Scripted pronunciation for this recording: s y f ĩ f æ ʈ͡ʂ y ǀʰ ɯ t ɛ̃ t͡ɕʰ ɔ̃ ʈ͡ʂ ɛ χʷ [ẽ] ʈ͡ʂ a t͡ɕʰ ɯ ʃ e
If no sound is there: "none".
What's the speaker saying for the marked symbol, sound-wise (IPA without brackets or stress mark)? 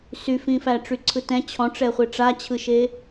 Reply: e